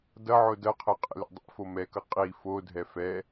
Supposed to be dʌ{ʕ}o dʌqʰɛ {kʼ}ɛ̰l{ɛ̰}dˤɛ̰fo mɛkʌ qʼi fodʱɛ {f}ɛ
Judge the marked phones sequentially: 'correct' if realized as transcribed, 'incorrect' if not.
correct, incorrect, correct, correct

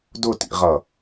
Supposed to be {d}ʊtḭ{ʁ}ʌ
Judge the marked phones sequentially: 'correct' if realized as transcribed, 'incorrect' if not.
correct, correct

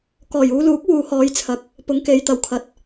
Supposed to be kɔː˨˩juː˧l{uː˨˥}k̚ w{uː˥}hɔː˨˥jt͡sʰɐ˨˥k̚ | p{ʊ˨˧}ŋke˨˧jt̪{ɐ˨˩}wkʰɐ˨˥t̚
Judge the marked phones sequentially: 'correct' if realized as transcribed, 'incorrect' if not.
correct, incorrect, correct, correct

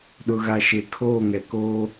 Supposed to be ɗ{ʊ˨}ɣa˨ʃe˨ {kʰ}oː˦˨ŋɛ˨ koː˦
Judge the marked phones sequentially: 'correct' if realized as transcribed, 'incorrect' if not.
correct, correct

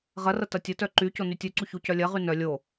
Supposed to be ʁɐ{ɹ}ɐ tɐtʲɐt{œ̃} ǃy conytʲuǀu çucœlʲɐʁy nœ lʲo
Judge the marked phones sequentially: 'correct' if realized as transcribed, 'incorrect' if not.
incorrect, incorrect

